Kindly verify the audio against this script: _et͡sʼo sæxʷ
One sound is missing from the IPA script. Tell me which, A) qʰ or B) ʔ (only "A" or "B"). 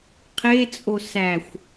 A